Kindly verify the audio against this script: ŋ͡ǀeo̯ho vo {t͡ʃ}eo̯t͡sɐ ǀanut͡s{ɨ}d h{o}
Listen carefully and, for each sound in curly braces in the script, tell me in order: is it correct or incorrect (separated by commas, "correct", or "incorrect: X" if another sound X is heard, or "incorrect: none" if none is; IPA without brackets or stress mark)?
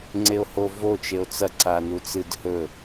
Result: correct, correct, incorrect: ɵ